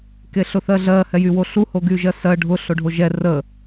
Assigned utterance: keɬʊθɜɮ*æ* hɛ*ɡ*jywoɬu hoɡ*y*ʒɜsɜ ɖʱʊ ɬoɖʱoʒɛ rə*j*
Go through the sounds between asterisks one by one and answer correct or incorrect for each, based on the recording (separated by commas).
incorrect, incorrect, correct, incorrect